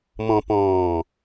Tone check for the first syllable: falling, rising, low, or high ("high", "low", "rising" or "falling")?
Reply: low